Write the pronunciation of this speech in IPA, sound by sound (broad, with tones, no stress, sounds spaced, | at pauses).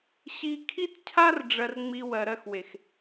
ɕ i˧ kʰ i˦ t cʰ a˦ r ɖ͡ʐ ɜ˧ r ŋ͡m i˧ w ɜ˨ ɾ ɜ˧ x w e˨ x